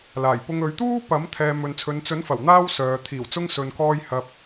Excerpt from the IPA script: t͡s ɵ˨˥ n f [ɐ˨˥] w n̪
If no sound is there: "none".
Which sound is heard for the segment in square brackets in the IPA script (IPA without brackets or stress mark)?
ɐ˨˩